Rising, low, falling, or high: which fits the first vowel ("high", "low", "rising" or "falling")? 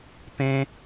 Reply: high